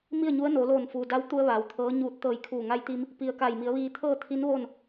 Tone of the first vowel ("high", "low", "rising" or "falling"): falling